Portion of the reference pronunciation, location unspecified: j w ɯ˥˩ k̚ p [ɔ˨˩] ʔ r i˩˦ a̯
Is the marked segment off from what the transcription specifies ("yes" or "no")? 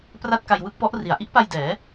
yes